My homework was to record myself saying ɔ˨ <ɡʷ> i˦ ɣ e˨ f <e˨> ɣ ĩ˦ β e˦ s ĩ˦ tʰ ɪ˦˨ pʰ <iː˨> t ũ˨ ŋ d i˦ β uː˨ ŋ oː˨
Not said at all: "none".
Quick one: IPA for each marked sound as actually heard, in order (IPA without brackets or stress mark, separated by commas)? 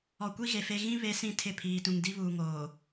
kʷ, e˦, iː˨